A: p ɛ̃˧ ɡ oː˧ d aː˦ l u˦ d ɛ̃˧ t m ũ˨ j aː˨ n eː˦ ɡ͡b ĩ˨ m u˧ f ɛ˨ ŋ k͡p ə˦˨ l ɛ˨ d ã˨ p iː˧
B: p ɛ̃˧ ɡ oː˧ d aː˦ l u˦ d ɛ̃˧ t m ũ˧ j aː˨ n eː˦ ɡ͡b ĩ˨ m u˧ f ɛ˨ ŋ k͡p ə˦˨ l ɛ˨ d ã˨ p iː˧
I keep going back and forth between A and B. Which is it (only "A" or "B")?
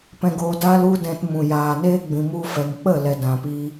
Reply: A